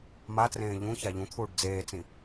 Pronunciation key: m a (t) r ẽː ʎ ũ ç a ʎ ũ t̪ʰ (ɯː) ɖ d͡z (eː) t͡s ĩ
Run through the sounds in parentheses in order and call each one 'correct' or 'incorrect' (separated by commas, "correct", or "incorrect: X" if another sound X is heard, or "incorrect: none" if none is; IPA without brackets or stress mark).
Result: correct, incorrect: uː, correct